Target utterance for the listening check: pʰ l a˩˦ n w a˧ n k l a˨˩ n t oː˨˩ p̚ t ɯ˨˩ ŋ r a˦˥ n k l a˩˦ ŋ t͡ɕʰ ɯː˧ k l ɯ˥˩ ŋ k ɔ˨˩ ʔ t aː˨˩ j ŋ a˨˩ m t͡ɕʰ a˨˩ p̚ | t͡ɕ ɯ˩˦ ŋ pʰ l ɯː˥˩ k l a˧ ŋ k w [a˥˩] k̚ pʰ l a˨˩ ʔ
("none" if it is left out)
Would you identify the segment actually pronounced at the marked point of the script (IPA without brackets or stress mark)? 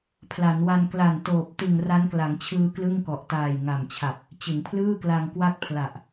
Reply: a˥˩